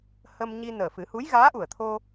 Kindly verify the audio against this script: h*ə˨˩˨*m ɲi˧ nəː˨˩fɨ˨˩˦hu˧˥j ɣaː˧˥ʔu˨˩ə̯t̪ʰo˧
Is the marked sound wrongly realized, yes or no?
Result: yes